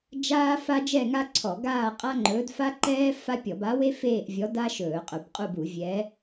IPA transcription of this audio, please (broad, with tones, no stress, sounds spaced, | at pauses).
d͡ʒ aː˥ f a˥ d͡ʒ ɛ˥˧ ŋ a˥ ǀʰ ɔ˧˩˧ ɡ aː˥˧ qʼ a˥ ŋ͡ǃ ɵː˧˥ d f a˥ ǃ ɛː˥ f a˥ pʲ ɔ˧˩˧ b a˧˥ w e˥ f eː˥˧ ʔ vʲ ɔ˧˥ d a˥ ʃ ɵː˧˩˧ qʼ ɵ˧˩˧ b qʼ u˥˧ b u˧˩˧ vʲ ɛ˧˥